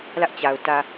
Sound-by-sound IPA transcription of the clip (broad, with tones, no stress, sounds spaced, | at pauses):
l ä˦ ʔ t͡ɕ a˨ ʊ̯ t ä˨